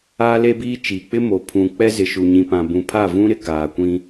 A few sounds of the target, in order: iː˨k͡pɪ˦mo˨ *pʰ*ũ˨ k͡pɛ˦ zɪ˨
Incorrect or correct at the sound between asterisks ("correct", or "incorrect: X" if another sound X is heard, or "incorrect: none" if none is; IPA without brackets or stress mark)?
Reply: correct